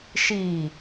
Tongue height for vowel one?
high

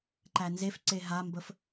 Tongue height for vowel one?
low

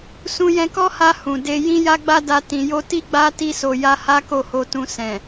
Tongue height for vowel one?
high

